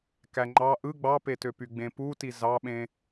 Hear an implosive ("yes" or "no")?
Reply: yes